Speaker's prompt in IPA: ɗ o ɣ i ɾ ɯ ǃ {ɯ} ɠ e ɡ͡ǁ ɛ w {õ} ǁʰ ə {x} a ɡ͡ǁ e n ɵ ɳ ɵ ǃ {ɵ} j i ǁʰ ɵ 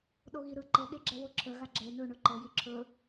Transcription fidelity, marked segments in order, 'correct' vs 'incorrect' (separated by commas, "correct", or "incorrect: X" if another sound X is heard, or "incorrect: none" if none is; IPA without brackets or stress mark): incorrect: ɤ, incorrect: o, incorrect: ɣ, incorrect: ɤ